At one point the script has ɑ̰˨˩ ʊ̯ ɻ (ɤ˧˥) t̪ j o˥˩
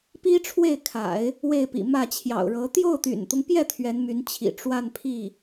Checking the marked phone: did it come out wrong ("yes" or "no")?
no